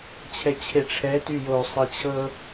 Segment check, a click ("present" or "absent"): absent